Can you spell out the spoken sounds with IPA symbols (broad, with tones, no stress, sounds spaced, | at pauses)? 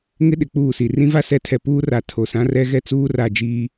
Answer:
ŋ ɪ˦ ɗ ɪ˨ k͡p uː˦˨ s i˨ r ĩ˦ v a˦ s ɛ˨˦ tʰ ɛ˨ p uː˦ r a˨ tʰ o˨ s ã˦ r ɛ˦ ɣ ɛ˦ t͡s uː˦ r a˦˨ d͡ʒ iː˦